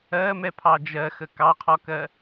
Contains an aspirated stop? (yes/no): yes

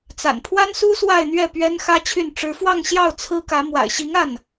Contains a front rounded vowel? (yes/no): yes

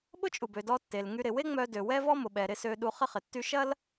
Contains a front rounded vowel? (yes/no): yes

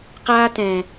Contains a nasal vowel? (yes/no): yes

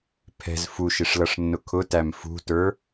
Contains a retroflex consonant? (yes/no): yes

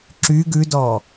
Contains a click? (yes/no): yes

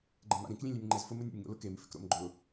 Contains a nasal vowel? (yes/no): yes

